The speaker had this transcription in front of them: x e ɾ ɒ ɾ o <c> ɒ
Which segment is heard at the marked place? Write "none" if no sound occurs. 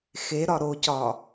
c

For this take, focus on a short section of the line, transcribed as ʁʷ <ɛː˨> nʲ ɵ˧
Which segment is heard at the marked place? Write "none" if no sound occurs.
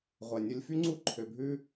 ɛ˨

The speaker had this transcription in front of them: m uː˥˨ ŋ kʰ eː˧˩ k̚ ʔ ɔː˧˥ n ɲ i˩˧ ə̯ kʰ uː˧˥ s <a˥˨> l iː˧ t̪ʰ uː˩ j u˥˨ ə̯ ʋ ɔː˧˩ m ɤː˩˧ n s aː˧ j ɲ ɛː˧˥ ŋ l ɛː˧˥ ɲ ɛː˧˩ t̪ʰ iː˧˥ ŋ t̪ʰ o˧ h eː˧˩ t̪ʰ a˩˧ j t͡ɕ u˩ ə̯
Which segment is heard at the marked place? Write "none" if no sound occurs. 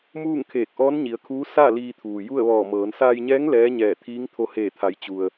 a˥˨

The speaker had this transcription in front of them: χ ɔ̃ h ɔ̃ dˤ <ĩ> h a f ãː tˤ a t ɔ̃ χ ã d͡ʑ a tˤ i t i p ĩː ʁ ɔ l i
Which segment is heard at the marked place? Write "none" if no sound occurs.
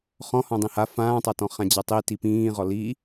ĩ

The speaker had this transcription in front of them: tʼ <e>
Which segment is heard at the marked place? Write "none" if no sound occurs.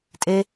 e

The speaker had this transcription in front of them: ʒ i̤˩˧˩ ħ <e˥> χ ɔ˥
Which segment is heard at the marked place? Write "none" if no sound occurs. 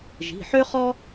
ø˥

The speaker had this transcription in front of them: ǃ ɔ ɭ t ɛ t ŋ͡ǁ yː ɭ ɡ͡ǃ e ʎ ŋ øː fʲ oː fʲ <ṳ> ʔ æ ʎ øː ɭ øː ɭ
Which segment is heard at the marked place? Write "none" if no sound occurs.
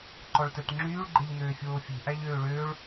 ṳ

